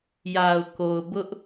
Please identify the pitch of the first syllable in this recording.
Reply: low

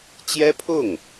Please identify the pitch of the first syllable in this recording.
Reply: high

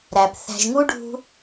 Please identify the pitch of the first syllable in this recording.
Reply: low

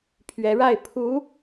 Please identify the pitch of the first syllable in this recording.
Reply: rising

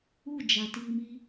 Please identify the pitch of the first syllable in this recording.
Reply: falling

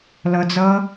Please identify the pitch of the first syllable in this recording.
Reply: low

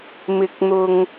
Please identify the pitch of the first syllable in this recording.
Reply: low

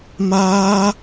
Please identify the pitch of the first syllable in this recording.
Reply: high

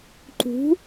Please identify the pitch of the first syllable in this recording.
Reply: rising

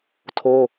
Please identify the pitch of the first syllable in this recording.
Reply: high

